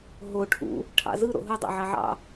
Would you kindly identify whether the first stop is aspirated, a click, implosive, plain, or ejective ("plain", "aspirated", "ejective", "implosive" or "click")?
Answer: aspirated